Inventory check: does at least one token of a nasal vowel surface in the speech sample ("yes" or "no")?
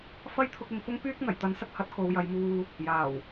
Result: no